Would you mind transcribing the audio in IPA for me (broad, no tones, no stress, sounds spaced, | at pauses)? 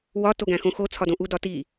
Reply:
w ɒ t o ɡ æ̃ x õ x o t͡sʰ ɒ d õ ʔ u d ɒ t i